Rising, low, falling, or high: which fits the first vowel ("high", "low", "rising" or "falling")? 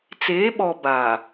rising